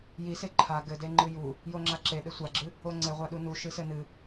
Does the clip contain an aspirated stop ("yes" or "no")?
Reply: yes